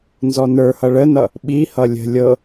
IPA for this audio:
n z ɔ n ə˞ h ʌ ɭ ə n ʌ | ɓ i h ʌ lʲ ə̤ lʲ ɤ

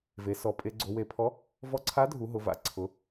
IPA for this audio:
v e˩˧ s ɔ˩˧ pʼ e˩˧ ɡ͡ǀ o˩˧ w e˩˧ pʰ ɔ˨˥ | v ɔ˨˥ ǀʰ a˨˥ dʱ u˩˧ ɦ ʊ˩˧ v a̰˩˧ ǀʰ ʊ˩˧

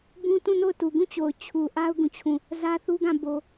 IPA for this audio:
b ũ˦ t ũ˦˨ n o˦˨ ʊ̯ t u˨ ɡ ũ˦˨ t͡ɕ o˨ ʊ̯ t͡ɕʰ u˨ ʔ a˦ ʊ̯ ɡ ũ˦˨ t͡ɕʰ ũ˦˨ | z ä˦ θ u˦ ɡ ã˦˨ b o˦

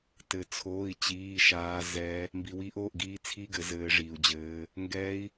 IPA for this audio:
t ɘ˧ t͡sʰ oː˧˥˧ i̯ t͡ɕ iː˧˥˧ ʃ aː˦˥ z ɛ˦˥ | m b i˧ w iː˦˥ ʔ oː˧˥˧ ʔ ɡ iː˦˥ t͡sʰ i˧ ɡ ɘ˩˧ z ɘː˦˥ ʐ iː˧ u̯ d͡ʑ ɘː˦˥ | ŋ ɡ ɛ˦˥ i̯

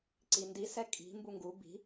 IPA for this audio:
ǀ i n d i s ɛ kʼ i̤ m b u ŋ ɡ u b i̤

